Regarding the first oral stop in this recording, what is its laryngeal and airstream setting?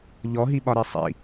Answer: implosive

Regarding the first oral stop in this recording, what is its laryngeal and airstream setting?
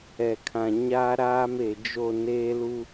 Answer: aspirated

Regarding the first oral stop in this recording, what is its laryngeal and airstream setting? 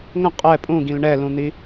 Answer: ejective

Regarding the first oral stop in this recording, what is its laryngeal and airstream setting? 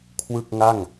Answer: aspirated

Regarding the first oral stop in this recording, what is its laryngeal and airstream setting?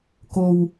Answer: plain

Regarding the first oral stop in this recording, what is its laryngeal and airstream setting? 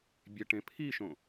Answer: plain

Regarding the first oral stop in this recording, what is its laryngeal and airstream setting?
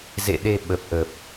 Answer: implosive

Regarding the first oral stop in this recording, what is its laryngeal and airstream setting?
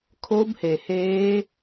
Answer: aspirated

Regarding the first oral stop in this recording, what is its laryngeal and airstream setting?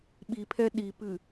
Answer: implosive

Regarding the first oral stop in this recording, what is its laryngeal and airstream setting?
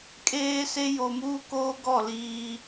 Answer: ejective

